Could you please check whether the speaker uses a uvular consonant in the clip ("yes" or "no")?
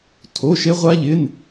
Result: yes